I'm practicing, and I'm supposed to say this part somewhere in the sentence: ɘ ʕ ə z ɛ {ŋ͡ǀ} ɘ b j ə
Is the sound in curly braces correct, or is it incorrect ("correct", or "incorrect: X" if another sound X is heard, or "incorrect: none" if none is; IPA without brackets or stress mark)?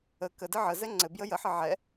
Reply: correct